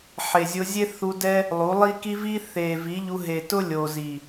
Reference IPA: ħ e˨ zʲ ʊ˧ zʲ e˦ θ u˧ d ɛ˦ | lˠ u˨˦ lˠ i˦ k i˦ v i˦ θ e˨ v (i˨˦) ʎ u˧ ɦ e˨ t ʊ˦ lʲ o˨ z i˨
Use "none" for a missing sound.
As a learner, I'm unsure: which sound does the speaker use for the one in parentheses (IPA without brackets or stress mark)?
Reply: i˨˦